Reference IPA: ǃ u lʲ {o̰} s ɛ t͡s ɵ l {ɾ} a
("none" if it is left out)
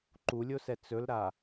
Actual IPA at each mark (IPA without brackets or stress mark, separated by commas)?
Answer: o, ɾ